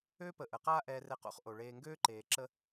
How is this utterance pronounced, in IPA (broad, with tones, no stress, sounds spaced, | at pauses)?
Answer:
ø˥ p ə˨ ʔ ə˩ q aː˦ ʔ ɛː˨ r ɛ˨ q o̰˦ χ ʔ o˩ ɭ eː˨ ŋ ɡ øː˥ ǃ eː˩ ǁ ə˦